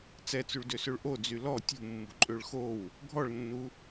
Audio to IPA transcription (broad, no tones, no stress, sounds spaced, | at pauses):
t͡s ɛ t͡s y ɭ d ø s ø ɭ ʔ o d͡z y l ɔ tʲ ṳ mː ṳ ǃʼ ø ɭ x o w | ɡʱ ɔ ɭ nː u